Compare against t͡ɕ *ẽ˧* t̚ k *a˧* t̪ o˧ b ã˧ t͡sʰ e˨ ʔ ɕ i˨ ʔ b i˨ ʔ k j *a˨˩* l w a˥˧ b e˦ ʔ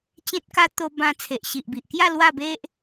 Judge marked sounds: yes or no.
no, no, no

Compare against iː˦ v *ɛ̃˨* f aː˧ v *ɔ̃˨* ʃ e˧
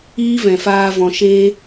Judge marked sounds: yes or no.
yes, yes

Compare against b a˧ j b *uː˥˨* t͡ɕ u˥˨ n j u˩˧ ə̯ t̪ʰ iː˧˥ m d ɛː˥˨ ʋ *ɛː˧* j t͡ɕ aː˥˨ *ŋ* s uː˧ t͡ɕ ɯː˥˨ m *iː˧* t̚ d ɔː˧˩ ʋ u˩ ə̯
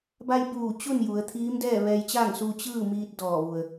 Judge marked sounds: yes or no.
no, yes, yes, yes

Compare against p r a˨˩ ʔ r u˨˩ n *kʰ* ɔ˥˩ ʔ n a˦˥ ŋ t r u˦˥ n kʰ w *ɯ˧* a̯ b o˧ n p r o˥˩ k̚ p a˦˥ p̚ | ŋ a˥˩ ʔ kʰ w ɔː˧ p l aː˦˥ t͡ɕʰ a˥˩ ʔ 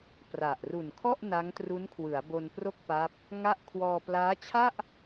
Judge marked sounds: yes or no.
yes, no

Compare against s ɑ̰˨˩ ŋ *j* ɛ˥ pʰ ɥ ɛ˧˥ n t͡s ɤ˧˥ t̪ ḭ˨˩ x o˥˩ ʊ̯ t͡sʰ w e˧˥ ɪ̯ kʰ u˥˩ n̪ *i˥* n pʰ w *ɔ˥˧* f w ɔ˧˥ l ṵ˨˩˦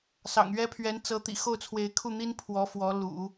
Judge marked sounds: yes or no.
no, yes, no

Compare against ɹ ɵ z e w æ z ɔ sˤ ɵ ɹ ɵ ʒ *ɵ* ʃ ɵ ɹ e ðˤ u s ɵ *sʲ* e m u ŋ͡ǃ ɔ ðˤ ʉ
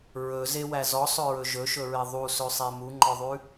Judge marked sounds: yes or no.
yes, no

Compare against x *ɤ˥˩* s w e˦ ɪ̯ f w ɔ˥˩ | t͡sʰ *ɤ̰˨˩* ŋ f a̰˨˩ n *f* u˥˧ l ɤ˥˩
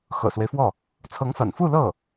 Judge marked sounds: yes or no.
no, no, yes

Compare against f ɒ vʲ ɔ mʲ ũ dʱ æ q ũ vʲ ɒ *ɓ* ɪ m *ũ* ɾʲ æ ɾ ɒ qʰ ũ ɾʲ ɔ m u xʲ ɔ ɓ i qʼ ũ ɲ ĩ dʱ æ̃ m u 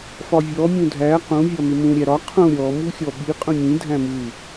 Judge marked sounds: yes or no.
no, yes

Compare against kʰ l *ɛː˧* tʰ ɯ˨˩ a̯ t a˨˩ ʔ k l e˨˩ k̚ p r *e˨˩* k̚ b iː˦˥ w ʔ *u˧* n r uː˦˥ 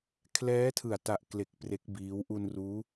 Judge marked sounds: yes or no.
no, no, yes

